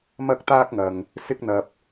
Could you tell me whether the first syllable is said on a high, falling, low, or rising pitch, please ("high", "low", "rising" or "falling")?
high